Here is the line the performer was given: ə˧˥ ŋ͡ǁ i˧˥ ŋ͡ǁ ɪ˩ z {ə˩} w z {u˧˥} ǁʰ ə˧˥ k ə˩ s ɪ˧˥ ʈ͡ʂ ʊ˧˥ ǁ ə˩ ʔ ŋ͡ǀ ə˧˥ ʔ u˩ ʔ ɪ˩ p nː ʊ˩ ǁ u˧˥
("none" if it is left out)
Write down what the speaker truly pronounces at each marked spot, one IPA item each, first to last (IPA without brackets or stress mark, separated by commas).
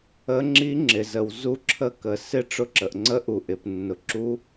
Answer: ə˩, u˧˥